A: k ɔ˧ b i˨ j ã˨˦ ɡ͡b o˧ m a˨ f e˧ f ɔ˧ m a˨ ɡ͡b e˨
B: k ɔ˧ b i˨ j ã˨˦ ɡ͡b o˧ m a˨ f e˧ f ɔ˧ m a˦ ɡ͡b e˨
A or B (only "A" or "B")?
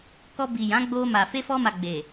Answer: A